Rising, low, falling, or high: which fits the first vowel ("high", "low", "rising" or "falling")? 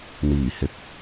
low